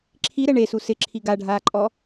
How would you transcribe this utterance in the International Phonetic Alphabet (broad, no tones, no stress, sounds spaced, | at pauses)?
ǁʰ i ɾ ɛ ɳ e s u s ɪ ǁʰ i ɡ a ɖʱ aː ǃʼ ɔ